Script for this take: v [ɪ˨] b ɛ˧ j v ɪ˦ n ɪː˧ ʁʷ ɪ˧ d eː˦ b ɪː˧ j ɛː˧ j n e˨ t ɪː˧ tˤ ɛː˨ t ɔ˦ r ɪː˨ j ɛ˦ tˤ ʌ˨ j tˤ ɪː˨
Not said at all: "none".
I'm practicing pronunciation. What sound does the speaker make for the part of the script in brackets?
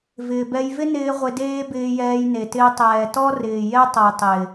ɪː˨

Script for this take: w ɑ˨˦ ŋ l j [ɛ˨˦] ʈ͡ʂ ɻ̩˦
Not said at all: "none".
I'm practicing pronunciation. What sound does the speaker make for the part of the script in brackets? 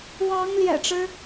ɛ̰˨˩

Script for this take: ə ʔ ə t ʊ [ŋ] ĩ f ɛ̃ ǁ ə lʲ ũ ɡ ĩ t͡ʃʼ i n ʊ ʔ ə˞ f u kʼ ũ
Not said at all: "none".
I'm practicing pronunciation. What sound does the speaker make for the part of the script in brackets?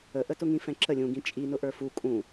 ŋ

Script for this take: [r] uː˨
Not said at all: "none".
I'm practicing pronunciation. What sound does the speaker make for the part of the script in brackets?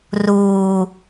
r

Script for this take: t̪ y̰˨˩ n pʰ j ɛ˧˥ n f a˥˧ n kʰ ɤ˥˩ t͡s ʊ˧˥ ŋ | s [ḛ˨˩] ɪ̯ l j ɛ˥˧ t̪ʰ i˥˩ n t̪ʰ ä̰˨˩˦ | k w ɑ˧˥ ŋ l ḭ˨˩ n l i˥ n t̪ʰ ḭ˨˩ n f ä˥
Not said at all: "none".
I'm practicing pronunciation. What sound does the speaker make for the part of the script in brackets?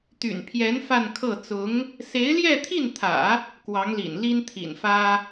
e˧˥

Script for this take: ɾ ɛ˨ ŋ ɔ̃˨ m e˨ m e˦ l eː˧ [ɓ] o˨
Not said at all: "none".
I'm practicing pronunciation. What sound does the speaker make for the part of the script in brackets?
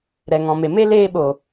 ɓ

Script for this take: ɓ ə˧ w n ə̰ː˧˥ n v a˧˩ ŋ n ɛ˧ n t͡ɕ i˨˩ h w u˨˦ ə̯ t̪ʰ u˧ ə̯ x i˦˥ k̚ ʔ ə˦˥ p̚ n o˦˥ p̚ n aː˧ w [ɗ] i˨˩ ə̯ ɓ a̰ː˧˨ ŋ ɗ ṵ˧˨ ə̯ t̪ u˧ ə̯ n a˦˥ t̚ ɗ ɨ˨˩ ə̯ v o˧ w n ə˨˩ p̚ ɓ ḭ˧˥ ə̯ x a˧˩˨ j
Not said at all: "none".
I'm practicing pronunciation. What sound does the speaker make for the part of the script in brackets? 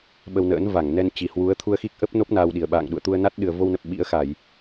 ɗ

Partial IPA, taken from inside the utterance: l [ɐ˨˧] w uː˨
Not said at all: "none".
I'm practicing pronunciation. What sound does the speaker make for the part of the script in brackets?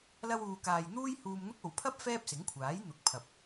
ɐ˧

